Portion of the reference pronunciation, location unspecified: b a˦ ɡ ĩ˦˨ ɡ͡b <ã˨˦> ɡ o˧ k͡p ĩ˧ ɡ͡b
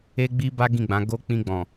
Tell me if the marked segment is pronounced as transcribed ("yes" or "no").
yes